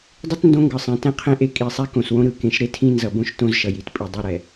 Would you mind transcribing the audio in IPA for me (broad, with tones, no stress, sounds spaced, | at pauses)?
dˤ ɯ˦ t n d õ˦ ŋ ɡ ɯ˨ sˤ ẽ˨ t ɛ̃˦ qʰ ẽ˦ ʔ e˦ kʼ i˨ sˤ ɛ˦ k õ˨ s w õ˦ ɾ ɯ˨ k ẽ˨˦ ʃ ɾ e˦ tʰ ĩ˦ n z ʌ˨ b õ˦ ʃ t õ˦ z ʃ ʌ˨ j i˨ t pʼ i˨ dˤ o˦˨ ɾ ɛ˨